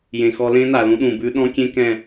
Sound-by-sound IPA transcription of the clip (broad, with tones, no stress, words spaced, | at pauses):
jẽ˨xɔ˧lẽ˦ na˨lũ˧ɗũ˨bʉ˧ ɗɔ̃˦kʲẽ˦kɛ̃˦˨